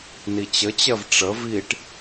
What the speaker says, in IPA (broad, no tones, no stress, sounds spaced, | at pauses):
n i t͡ɕ ə t͡ɕ ɜ v ʈ͡ʂ ə v i ʈ